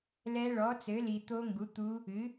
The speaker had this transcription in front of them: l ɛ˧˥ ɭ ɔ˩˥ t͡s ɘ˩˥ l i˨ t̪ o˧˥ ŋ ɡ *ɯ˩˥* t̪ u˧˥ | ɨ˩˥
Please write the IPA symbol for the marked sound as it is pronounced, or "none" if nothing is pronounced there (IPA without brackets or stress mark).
u˩˥